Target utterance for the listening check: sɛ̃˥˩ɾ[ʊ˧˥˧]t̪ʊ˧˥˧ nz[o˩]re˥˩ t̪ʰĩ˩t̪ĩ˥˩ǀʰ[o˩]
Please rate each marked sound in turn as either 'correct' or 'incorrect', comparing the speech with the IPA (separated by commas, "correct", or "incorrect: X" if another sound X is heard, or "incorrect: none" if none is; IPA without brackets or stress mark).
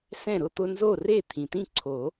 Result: correct, incorrect: o˥˩, incorrect: o˨˩˦